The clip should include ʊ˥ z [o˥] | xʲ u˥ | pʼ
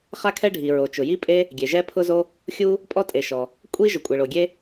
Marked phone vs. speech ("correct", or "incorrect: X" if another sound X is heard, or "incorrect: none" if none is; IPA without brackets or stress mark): correct